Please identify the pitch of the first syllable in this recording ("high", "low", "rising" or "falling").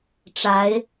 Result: rising